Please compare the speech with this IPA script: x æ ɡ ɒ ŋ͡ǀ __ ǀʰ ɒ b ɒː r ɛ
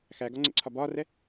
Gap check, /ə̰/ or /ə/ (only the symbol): ə̰